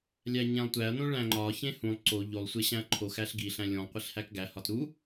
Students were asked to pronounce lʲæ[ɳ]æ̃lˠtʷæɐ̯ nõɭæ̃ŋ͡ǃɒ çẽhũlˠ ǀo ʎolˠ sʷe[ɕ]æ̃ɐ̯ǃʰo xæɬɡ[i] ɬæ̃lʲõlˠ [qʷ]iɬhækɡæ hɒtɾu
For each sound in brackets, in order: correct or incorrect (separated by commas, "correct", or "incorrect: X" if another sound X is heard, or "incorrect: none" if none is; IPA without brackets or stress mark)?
incorrect: ɲ, correct, correct, correct